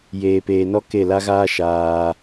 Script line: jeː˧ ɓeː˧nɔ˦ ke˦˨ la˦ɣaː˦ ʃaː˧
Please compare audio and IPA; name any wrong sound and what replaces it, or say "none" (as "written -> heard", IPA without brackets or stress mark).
ɓ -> p